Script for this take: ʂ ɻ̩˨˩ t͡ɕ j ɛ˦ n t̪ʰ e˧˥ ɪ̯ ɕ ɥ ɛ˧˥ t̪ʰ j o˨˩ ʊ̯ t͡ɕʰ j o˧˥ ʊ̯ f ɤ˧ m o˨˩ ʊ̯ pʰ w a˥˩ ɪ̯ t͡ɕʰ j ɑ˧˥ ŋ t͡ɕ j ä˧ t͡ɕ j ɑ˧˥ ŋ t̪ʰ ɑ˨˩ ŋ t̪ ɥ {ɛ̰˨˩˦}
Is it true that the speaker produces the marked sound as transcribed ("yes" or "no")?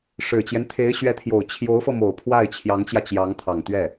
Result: no